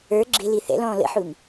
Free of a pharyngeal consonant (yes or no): no